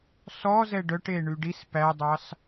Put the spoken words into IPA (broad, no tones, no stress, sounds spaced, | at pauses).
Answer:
s ɔ z ɛ ɖ œ ʈ e ɳ y ɖ i s p æ dˤ ɑ s